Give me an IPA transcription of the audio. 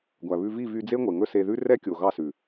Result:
ɡʷ æ˨ β ʉ˧ v i˦˨ v y˧ d͡z e˦ ŋʷ e˨ ŋ ɵ˦ s e˧ ð ʉ˦ r ɛ˦ kʲ o˨ ɣ ɑ˦˨ s ʉ˨

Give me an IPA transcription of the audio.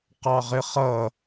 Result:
q ɑ ʁ ɪ χ ʌ

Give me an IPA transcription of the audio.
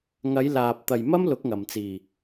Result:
ŋ ɐ˨˧ j l aː˨ p̚ t̪ ɐ˨ j m ɐ˥ m l ʊ˨˥ k̚ ŋ ɐ˨˩ m t͡s iː˨˩

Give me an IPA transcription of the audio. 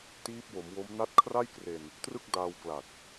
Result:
t iː˦˥ p̚ w o˩˦ m w o˦˥ m n a˦˥ t̚ kʰ r a˥˩ j k r e˧ n | t r ɯ˥˩ k̚ d aː˧ w k l a˨˩ t̚

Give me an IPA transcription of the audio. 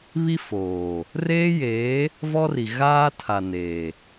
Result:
β i˦ f oː˨ | r eː˦ j eː˨˦ | v ɔ˦ r i˨ ɣ aː˦ tʰ a˨ n eː˨

